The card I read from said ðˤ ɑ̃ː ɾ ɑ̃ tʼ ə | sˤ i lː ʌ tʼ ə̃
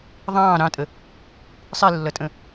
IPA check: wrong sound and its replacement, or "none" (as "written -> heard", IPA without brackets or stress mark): none